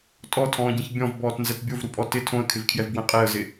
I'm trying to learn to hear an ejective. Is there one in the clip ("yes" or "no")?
yes